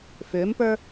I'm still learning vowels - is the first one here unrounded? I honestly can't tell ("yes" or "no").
no